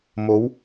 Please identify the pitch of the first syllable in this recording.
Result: rising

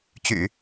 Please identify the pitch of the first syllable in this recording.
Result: low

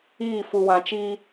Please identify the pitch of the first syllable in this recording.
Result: falling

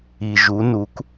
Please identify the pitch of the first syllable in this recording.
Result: low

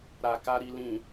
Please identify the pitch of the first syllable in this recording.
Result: low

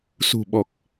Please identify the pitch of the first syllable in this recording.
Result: low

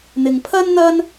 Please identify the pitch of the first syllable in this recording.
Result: low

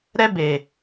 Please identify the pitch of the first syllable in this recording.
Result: high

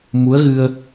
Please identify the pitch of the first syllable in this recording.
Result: rising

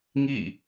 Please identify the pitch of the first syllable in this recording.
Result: falling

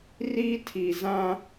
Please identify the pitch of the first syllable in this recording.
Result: high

